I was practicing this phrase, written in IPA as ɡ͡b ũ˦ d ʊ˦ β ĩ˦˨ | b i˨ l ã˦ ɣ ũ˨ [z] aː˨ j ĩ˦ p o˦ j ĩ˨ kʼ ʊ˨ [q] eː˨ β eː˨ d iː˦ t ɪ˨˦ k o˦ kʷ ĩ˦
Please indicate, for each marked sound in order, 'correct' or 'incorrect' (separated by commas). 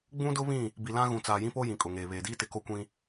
incorrect, incorrect